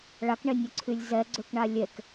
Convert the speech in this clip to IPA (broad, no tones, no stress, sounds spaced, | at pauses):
ɭ a k ɳ ɛ nʲ œ ǀʰ y lʲ z ɛ ɡ͡ǀ ø k ɳ a lʲ ɛ k